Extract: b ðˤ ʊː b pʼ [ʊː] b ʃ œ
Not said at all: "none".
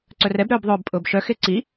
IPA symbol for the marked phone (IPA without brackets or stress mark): ʊː